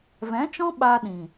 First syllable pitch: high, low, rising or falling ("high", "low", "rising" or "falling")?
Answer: rising